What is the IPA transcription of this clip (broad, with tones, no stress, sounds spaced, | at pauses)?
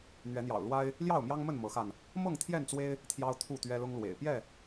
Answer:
n̪ ɥ ɛ˨˦ n̪ j ɑ̰˨˩ ʊ̯ l w a˦ ɪ̯ | l j ɑ˥˨ ʊ̯ m j ɑ˦ ŋ m ə˥˨ n m ɤ˨˦ x a˧ n | m ɤ˥˨ ŋ t̪ʰ j ɛ˥˨ n t͡s w e˦ ɪ̯ | t̪ʰ j ɑ˦ ʊ̯ t̪ʰ u˥˨ t̪ ɥ ɛ˦ l ʊ˦ ŋ l w ḛ˨˩ ɪ̯ p j ɛ˥˨